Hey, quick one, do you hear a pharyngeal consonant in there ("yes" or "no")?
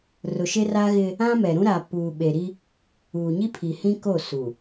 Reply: no